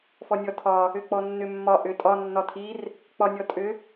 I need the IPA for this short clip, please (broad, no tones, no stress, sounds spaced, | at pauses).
f ɔ nʲ ɔ tʰ ɒ | ʏ k͡p ɔ nː ʏ mː ɒ ʔ ʏ tʼ ɒ nː ɒ tʰ i r | k͡p ɒ nʲ ɔ tʼ ʏ